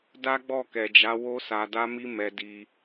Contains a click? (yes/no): no